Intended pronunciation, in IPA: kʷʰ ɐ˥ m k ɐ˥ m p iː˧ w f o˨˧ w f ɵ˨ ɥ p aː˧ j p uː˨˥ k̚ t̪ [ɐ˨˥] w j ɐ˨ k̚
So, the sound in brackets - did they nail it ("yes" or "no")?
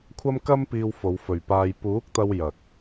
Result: no